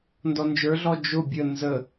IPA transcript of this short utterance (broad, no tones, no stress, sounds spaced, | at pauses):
n d ɔ n d͡ʒ ə˞ ɮ ɔ d͡ʒ ʊ bʲ ə n z ə